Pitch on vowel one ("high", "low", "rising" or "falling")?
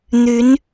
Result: rising